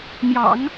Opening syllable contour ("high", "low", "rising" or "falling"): low